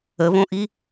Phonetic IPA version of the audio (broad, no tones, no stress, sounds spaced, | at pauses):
ə β õ ʔ i